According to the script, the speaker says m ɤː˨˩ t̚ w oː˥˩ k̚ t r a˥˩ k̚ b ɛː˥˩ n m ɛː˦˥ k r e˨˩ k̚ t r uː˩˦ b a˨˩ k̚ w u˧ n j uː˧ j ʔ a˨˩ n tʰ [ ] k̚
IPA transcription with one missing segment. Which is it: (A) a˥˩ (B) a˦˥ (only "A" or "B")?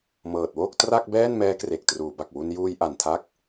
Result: B